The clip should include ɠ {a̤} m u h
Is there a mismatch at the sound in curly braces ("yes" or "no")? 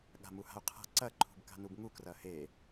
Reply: no